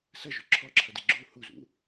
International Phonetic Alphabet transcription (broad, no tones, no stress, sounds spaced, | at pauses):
s ɐ ʒ o ǁʰ ɔ ǁʰ ɐ d e ɡ͡ǁ u h u z ṵ